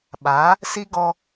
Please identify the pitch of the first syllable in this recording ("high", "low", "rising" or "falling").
rising